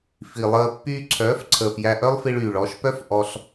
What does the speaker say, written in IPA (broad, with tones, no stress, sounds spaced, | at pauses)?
f i˨ lˠ əː˧ pː yː˧ ǀʰ œː˨˦ f ǀʰ əː˨ f j æ˧ ʔ œ˦ lˠ f i˧ ɭ yː˨ ɭ ɔ˨˦ ʃ p œ˦ f ʔ ɔ˧ ɬ